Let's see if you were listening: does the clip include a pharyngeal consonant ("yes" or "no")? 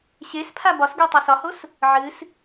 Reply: yes